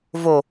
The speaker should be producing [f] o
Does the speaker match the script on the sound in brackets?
no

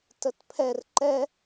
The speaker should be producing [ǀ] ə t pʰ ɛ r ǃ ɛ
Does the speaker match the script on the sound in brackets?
no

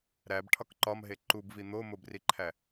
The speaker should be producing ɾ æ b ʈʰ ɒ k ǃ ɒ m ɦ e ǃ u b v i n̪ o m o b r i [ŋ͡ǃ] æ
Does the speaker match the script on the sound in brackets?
no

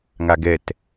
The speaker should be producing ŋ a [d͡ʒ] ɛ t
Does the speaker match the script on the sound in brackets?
no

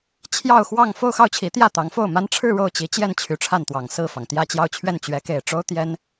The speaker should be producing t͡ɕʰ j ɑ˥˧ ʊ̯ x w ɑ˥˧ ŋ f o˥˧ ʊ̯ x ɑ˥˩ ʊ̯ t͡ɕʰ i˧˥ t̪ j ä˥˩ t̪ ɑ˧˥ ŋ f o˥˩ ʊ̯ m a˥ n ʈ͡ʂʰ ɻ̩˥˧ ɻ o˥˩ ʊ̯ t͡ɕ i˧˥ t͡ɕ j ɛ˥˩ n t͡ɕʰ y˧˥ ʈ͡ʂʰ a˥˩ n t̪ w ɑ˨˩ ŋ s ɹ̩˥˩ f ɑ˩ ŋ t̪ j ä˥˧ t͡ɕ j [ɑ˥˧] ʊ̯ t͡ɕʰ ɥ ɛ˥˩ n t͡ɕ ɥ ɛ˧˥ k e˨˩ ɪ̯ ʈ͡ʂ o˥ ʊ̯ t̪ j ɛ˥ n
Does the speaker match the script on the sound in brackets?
yes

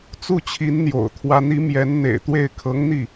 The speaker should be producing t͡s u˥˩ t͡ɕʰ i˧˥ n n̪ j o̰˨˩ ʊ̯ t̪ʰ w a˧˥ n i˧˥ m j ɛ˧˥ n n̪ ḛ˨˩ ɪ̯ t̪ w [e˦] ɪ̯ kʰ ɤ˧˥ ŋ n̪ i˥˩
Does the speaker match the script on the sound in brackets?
no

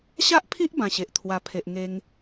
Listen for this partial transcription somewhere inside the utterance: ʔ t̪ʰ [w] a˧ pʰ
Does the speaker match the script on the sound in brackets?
yes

